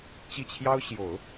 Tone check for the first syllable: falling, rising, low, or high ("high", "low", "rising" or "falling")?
falling